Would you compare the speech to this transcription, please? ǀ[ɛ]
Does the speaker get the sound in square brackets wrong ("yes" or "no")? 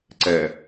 no